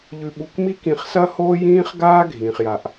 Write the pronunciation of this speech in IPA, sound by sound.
ʎ ʉ˧ ɓ u˧ k m i˥ k ĩ˧ χ s ɐ˥ h oː˥ j ĩː˥ χ ɡ aː˥ ɡʱ ĩː˩ χ j a˩ ʔ

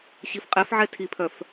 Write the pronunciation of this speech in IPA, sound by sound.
ɕ i f qʼ ɛ f ʕ ɛ tʰ i pʰ œ f

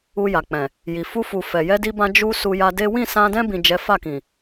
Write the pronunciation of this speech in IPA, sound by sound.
u˧ j a˨ k͡p ɛ̃˨ | j i˨ f u˧ f u˨ f ɛ˨ j ɛ˧ d i˧ b ã˧ d͡ʒ u˧ s u˧ j a˧ d e˦ w ĩ˦˨ s ã˧ d ɛ̃˧ b ĩ˨ d͡ʒ ɛ˨˦ f a˦˨ k ĩ˨

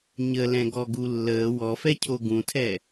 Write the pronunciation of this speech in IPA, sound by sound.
ɲ ə l ɛ̃ ɡ ɔ ɡ u lː əː w ɔ f ɛ cʰ o ɡ ũ tʰ ɛ

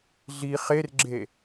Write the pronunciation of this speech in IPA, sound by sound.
ɮ i χ e r ɡ͡ǁ e

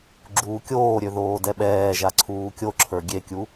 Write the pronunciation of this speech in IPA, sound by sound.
ɡ͡ǁ uː kʲ oː ɾʲ ø ð oː d ɛ ɓ ɛː ʒ a ǀʰ uː kʲ o ǁʰ ə˞ ɡʲ e kʲ u

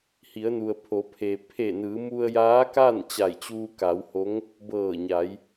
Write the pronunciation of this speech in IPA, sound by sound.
h i˩˧ ə̯ n u˩ ə̯ pʰ o˩˧ pʰ e˩ pʰ e˧˩ n ɯː˩˧ m u˧ ə̯ j aː˧˥ k aː˥˨ n t͡ɕ a˧˩ j t͡ɕ uː˧ k a˩˧ w h o˧˥ ŋ | b ɤː˧˩ ɲ a˩˧ j

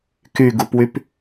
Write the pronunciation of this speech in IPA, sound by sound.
k y ɡ u p w y p

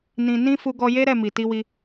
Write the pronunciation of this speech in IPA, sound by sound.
n ĩ˨ n ĩ˧ f u˧ ɡ ɔ˧ j e˦ ɾ ɛ˦˨ m i˨ t i˧ w i˧

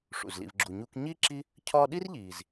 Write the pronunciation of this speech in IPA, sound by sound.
ʂ ṵ˩ z l ḭ˨ v ɡ͡ǁ u˨ ɲ uː˦ k ɲ iː˥ ǁ i˦ | cʰ ɒː˦ ɗ i˥ r ʎ iː˩ z

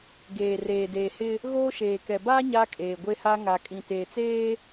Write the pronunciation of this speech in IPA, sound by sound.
ɡ eː˨ r eː˨ d eː˨ h ɪ˦ | ɣ oː˦ ʃ eː˨ k ɛ˨ b aː˦ ɲ a˦ kʼ eː˨ ɡʷ e˦ h a˦ ŋ a˨ kʼ ĩ˨ t eː˨ t͡s eː˦

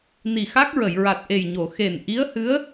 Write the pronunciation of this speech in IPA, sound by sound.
n i˨˩ x a˦˥ k̚ ɹ ə˨˩˨ j ɹ a˨˩ t̚ ʔ e˨˩ j ɲ o˨˩˨ x e˨˩ n ʔ i˧˥ ə̯ h ɨ˧˥ ə̯

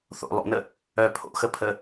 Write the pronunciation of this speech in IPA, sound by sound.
θ o̰ lˠ o̰ n ə | œ pʰ o̰ x ə pʰ ə

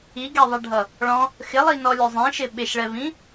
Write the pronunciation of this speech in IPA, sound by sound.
i ɡ ɛ ðˤ æ ɖʱ ʌ | ɭ ɔ̃ | x ɪ lˠ i n ɔ lʲ ʊ zˤ ĩ ʃ ɪ ɓ ɪ ʃ ɭ ɛ v ĩ

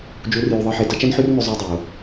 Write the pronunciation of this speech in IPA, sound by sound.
d͡ʒ u˨˦ r j u˨ ðˤ ɨ˨ ħ e˨ d ɐ˦ t͡ʃ ɐ˦ n ħ ʉ˦ r n ʉ˨ zˤ e˦ dˤ e˨ o̯

